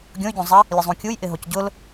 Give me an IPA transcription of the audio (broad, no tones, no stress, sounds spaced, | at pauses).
ɡʲ õ y̯ ɟ õ zˤ ɪ | lʲ ʊ zˤ ũ kʲ u j ʔ ɪ ɦ o c ɟ ʊ l